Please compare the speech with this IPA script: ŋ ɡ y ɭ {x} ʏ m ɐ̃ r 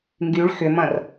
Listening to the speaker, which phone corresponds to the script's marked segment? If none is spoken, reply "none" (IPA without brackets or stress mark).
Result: x